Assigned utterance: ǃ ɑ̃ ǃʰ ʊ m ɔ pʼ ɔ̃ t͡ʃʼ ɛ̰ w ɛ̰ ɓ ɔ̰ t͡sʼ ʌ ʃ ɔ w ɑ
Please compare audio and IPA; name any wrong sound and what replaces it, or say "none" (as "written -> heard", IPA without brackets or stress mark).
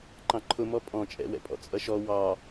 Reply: ɓ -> pʼ